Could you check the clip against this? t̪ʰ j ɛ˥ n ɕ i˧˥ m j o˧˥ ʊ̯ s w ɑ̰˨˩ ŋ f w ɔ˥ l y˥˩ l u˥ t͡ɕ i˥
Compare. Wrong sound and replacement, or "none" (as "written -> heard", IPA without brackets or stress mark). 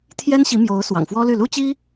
none